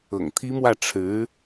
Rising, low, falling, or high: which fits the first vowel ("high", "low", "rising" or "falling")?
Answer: low